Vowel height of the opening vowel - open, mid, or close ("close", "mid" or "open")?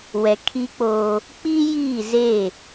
mid